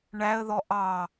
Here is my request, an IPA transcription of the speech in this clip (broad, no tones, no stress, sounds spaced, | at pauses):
ɳ æ ə̯ ð ɔ ʔ ɑ